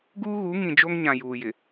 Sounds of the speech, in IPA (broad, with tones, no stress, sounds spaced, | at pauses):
ɡ uː˦ ɣ u˨˦ ŋ ĩ˨ d͡ʒ o˦ ŋ ɲ ã˨ j uː˨ j ɪ˨